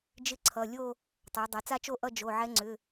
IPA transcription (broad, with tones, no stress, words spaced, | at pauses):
d͡ʒɪ˥˧ǀʰʌ˩˧˩lʲo˥˧ | tˤa˩˧dˤa˩˧t͡sa˥˧t͡ʃo˥˧ ʔʌ˥˧d͡ʒo˩˧˩ ʕɛ˧˥ŋ͡ǀʏ˩˧˩